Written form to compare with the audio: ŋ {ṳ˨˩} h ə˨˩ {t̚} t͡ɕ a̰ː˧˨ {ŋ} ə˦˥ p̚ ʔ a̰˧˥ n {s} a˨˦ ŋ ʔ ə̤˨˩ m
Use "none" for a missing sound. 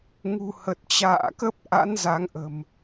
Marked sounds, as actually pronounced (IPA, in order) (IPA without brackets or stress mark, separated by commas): ṳ˨˩, t̚, k, z